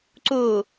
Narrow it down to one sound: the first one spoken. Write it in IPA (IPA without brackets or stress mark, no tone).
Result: ǀ